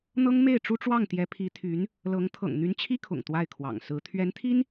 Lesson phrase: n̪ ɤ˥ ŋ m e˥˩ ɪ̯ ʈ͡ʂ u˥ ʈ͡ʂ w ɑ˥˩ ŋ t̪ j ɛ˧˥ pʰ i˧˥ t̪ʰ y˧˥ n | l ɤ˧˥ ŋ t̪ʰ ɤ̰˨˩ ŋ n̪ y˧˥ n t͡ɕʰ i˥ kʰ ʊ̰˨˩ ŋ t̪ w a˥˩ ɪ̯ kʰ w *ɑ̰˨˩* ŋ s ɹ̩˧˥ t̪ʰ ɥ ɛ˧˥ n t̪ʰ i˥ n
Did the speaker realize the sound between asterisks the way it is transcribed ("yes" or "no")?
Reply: yes